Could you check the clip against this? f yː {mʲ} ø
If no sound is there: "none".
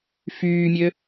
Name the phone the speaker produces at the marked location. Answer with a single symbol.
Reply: mʲ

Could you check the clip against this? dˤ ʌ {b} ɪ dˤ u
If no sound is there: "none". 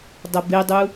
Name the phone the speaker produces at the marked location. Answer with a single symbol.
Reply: b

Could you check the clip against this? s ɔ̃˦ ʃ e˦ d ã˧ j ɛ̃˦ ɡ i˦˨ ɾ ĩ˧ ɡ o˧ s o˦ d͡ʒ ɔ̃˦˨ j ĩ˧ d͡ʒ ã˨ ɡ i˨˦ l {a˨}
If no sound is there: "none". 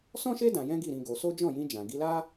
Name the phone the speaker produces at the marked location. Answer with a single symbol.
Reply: a˦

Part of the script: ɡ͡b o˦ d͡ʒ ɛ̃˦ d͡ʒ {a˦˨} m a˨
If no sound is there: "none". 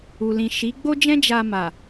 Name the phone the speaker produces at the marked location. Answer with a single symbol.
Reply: a˧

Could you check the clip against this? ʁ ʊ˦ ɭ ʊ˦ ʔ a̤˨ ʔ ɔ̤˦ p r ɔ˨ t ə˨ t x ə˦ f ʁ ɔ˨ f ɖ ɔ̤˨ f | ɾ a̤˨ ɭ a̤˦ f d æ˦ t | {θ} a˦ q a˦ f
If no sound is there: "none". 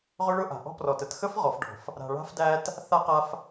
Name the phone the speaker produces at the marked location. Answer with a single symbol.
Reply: θ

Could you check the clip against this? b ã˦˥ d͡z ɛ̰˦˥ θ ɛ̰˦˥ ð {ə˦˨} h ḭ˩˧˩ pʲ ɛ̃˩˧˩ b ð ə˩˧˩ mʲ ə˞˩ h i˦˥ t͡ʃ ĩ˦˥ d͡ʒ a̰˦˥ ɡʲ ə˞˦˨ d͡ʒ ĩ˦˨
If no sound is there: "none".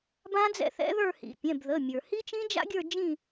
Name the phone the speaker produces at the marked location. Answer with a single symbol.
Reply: ə˞˦˨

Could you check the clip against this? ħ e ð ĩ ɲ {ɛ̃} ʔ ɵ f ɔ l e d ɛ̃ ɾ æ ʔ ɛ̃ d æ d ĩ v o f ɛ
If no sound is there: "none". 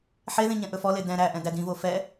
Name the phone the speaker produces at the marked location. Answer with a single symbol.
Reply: ɛ̃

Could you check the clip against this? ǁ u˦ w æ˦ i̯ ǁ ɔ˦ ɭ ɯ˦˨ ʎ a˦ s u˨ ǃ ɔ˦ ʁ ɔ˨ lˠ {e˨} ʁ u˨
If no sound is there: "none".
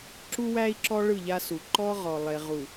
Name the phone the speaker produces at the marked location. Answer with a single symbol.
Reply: e˨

